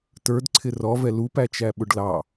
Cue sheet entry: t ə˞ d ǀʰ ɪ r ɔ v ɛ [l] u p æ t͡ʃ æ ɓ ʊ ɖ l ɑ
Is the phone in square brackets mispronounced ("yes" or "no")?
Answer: no